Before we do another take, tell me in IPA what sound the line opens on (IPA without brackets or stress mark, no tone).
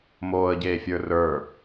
m